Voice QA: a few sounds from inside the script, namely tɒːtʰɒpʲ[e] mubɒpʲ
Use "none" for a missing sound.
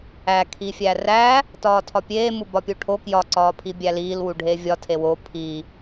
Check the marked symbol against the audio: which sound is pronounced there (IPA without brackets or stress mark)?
eː